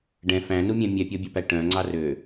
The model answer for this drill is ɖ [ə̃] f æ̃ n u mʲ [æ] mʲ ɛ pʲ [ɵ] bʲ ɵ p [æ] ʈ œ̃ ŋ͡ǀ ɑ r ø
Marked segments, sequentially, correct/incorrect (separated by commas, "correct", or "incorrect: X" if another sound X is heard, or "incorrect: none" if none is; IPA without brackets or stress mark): incorrect: ɛ̃, incorrect: æ̃, incorrect: ɔ, correct